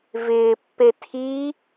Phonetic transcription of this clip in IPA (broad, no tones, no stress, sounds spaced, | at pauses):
v ɪː pː e tʰ i